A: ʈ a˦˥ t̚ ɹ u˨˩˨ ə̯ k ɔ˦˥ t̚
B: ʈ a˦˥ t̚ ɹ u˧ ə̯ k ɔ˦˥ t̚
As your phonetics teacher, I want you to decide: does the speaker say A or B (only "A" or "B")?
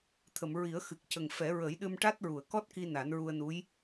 A